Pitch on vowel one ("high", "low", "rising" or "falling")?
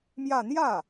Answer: falling